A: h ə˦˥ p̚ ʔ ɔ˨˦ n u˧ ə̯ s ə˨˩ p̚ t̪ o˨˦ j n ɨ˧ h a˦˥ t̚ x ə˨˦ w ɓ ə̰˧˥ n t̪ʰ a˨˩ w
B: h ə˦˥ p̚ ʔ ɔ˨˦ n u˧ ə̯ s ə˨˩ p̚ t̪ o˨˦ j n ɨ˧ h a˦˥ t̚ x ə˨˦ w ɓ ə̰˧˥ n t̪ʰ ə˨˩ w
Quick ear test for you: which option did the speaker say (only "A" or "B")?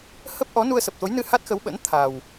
A